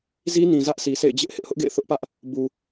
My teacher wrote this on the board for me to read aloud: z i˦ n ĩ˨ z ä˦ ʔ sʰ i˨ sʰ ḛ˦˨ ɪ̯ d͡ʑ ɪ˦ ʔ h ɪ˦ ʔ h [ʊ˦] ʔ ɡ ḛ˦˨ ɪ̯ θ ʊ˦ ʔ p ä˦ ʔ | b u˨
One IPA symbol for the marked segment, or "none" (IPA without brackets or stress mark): ʊ˦